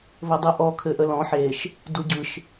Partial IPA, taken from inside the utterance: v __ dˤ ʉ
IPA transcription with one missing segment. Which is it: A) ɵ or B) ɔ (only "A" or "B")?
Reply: A